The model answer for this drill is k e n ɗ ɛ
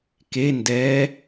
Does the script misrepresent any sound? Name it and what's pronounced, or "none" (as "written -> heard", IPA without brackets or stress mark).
ɗ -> d